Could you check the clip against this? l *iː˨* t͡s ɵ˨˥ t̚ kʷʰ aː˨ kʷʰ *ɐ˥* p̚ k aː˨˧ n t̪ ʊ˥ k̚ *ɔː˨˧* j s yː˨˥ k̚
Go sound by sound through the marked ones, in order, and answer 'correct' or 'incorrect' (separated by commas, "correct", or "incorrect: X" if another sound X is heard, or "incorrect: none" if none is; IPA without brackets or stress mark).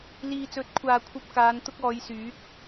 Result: correct, correct, correct